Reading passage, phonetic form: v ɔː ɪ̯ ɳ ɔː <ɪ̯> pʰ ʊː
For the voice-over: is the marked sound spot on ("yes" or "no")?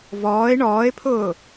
yes